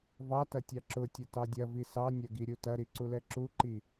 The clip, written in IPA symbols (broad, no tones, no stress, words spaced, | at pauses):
vɑtɐ tʲɑǁʊtʲɐ tɑdʲɐvi sɑnʲɐ ɡiɾʲutɐɾi ǀulɛǁuǃi